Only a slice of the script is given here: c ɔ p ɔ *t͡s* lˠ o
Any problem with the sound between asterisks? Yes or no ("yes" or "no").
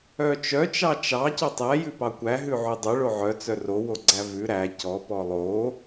yes